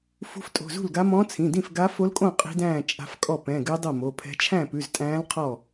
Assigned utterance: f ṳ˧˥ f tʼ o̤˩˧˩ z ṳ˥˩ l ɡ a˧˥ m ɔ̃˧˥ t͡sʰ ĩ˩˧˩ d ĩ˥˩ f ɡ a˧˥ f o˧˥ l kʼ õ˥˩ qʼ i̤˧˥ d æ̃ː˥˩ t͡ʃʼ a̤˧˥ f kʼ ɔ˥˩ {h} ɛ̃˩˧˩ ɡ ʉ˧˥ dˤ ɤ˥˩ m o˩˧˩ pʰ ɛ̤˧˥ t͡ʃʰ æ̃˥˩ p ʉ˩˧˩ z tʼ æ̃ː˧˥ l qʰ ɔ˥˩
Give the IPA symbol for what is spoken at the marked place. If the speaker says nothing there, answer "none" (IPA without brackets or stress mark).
p